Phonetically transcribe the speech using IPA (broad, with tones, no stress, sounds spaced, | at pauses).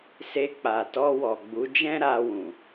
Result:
s e˧ k͡p a˨ t ɔ˧ w ɔ˨ ɡ͡b u˨˦ d͡ʒ ɛ̃˦ ɾ a˧ w ũ˨